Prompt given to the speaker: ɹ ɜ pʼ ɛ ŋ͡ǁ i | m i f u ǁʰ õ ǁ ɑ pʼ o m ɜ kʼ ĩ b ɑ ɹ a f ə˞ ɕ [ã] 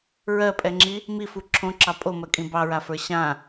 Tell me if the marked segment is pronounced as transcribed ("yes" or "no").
yes